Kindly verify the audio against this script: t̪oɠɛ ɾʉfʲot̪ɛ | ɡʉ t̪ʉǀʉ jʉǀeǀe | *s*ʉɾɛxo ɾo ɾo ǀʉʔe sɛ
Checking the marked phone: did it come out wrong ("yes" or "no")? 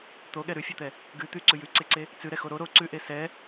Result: yes